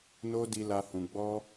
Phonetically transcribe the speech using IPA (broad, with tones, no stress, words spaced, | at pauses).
no˦ di˧la˧ hũ˧ɡ͡bɔ˦